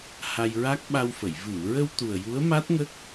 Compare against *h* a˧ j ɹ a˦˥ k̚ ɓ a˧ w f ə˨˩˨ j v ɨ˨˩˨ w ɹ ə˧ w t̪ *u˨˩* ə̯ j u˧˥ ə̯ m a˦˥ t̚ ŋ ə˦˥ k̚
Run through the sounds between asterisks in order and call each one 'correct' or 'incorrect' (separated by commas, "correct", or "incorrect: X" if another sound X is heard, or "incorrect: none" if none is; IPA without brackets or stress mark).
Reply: correct, correct